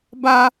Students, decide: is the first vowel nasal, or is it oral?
oral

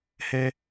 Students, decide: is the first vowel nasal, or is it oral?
oral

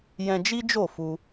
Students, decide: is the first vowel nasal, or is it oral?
nasal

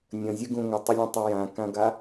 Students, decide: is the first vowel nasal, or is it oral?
nasal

